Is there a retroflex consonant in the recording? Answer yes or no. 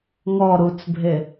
no